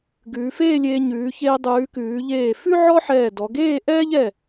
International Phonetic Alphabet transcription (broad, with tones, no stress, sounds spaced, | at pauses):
ɡ ʉː˩˧ f eː˥˧ lʲ eː˧ ɲ ʉː˩˧ ç eː˧ dˤ ʉː˩˧ k ʉː˩˧ ʎ eː˧˩ f ʉ˥ ʕ ɔ˥ ħ ɛː˧˩ d ɔ˩˧ ɡ eː˥˧ ʔ ɛː˥ ʎ ɛ˧˩